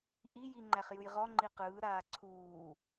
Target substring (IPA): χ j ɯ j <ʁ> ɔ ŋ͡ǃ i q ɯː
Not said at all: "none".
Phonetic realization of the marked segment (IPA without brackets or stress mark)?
ʁ